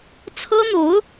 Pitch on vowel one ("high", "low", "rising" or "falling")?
high